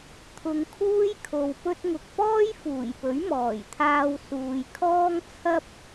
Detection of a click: absent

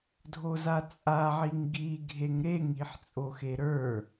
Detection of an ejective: present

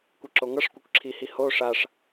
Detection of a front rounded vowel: absent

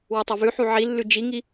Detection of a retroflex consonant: absent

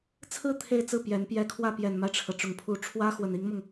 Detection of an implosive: absent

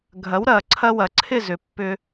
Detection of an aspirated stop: present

